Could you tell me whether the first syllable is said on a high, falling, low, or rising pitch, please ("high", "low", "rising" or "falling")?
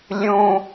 high